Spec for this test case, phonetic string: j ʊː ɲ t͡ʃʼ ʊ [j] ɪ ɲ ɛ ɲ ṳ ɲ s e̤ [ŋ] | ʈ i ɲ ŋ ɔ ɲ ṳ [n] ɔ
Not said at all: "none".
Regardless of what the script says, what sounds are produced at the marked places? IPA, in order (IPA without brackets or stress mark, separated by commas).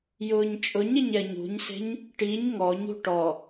ɲ, ɲ, ʈ